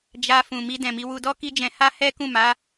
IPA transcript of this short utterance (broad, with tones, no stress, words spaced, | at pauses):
d͡ʒa˧ fũ˨mi˧ dɛ̃˨mi˨˦ wu˧dɔ˦ki˦d͡ʒɛ̃˧ ha˦hɛ˦ kũ˦˨ma˨˦